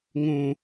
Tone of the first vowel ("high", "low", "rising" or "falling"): low